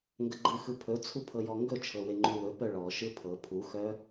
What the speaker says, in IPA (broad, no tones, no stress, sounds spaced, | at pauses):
ŋ ɡ ə ɡ͡ǃ ɯ x ɯ pʰ ɵ t͡sʰ u pʰ ɤ j ɔ ŋ ɡ ɵ t͡ʃʰ ɤ w e ŋ͡ǃ u w ɵ p œ ɭ ɔ ʃ ɯ pʰ ɤ pʰ u x œ